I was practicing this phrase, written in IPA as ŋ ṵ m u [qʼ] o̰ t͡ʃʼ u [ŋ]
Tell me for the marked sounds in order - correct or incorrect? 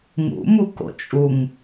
incorrect, correct

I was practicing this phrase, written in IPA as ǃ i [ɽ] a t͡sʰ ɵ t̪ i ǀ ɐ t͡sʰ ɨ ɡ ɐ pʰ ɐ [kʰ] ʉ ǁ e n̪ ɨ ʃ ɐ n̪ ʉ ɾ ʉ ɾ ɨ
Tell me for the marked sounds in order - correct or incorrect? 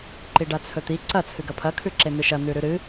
incorrect, correct

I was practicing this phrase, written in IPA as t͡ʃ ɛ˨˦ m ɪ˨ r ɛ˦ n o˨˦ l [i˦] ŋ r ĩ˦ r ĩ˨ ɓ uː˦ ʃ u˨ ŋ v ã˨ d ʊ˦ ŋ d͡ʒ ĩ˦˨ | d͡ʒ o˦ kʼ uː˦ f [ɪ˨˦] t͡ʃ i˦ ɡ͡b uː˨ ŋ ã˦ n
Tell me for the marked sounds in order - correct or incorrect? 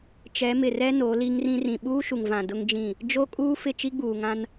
correct, incorrect

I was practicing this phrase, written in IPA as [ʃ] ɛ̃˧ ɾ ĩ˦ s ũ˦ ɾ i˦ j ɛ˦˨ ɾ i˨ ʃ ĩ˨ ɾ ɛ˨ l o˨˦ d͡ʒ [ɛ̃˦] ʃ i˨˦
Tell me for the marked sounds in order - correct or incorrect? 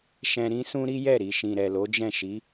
correct, incorrect

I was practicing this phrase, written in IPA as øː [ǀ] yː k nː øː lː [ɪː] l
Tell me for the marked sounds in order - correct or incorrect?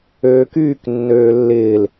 incorrect, correct

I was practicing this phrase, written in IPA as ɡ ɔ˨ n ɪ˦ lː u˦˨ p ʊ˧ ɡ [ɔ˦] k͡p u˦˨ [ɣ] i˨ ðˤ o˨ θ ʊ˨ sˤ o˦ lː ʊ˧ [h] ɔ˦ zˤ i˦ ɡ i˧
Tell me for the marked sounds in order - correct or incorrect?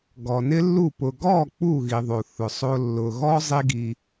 incorrect, correct, incorrect

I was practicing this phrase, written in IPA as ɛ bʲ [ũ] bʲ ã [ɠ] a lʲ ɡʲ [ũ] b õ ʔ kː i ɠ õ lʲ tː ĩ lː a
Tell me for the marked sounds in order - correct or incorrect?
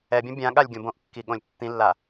incorrect, correct, incorrect

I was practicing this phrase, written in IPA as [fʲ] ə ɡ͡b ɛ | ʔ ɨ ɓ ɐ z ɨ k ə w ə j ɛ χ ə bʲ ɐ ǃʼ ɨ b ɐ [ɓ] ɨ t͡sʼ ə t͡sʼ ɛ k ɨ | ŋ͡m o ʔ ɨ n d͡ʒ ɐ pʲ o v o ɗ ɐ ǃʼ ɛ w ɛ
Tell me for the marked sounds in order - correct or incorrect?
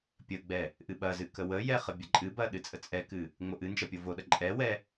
incorrect, incorrect

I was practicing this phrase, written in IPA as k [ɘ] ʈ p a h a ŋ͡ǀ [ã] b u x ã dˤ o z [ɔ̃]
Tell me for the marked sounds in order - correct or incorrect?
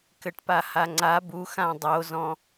correct, incorrect, correct

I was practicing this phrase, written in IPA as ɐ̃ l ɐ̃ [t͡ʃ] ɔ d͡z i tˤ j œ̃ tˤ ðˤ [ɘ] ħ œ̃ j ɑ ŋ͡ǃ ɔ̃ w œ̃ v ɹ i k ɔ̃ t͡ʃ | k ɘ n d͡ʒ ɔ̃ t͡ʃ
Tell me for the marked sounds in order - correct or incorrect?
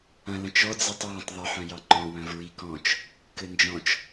correct, correct

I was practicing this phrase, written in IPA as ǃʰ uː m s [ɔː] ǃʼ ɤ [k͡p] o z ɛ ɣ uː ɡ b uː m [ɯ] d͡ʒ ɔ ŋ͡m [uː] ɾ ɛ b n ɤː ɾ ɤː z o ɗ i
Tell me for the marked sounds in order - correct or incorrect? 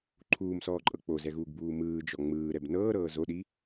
correct, correct, incorrect, incorrect

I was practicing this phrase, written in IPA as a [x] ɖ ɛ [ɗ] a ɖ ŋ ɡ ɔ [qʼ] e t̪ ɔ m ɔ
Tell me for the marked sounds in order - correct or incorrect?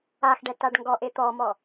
correct, incorrect, incorrect

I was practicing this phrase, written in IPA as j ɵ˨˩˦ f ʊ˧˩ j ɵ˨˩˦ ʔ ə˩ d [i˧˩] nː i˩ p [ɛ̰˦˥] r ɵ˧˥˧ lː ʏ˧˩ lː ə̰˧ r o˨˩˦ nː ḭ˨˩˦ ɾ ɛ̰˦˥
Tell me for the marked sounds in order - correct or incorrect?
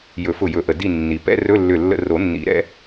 correct, incorrect

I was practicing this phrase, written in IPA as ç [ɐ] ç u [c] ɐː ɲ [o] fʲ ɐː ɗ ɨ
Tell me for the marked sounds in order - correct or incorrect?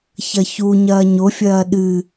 correct, incorrect, correct

